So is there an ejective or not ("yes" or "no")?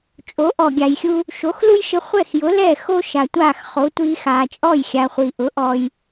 yes